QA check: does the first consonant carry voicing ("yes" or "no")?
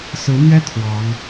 no